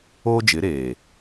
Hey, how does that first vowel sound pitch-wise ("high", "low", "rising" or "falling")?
high